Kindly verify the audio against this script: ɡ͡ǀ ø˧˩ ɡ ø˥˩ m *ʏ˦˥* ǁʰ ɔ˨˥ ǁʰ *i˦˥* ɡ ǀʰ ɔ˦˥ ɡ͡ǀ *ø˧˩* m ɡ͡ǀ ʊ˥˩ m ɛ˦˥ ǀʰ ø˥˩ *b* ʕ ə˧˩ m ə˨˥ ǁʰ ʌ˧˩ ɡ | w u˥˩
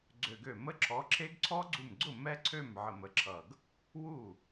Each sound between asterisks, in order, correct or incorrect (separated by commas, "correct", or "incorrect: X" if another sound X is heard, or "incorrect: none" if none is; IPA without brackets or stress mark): incorrect: ə˦˥, incorrect: e˦˥, incorrect: u˧˩, incorrect: m